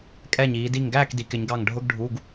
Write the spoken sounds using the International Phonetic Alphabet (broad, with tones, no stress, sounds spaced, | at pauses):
kʼ ɛ˧˩ ɲ iː˩˧ d i˧˩ ŋ ɡ æː˥˨ k d i˩˧ k ɪ˩˧ ɲ ɡ ɑ˧˩ ŋ ɖʱ ʊ˧˥˧ ɡ ɖʱ u˧˥˧ ɡ